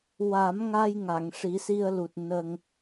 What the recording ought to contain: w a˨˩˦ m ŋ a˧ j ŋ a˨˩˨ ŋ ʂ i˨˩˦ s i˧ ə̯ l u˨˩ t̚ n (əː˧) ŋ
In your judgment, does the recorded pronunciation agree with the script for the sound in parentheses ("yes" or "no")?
no